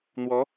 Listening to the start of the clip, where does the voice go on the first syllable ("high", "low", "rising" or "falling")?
rising